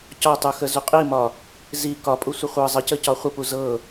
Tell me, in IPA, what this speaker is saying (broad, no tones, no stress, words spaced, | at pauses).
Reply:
cɒtˤuxə zuqʼimɒ | zi kɒpʼu sʷəχʷɤ zˤəcəcɒ χʷəpu zɤ